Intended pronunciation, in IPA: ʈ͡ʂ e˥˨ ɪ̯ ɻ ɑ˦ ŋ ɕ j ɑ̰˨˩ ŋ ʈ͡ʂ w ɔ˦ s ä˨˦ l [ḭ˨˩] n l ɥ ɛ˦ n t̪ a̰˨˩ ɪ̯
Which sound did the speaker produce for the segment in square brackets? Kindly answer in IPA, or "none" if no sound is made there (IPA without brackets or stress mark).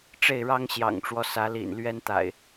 ḭ˨˩